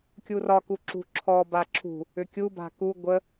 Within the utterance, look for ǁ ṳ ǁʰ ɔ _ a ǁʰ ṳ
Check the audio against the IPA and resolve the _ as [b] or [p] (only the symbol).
b